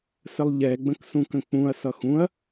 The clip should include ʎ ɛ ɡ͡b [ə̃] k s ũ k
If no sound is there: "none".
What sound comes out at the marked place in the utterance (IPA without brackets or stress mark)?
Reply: ə̃